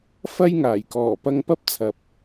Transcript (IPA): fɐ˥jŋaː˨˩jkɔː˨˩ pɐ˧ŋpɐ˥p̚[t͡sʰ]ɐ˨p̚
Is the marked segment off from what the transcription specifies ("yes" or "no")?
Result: no